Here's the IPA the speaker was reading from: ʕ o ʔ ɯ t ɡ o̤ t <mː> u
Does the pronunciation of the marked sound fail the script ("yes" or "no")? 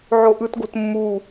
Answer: no